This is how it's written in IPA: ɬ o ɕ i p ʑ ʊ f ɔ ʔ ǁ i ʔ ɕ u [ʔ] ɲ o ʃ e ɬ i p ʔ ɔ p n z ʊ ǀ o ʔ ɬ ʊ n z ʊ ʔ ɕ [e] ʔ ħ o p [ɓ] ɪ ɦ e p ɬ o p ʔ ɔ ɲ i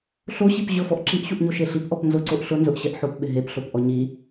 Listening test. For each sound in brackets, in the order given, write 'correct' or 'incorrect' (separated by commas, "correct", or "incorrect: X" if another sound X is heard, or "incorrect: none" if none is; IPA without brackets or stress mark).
correct, incorrect: ɛ, correct